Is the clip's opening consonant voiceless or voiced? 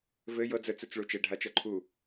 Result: voiced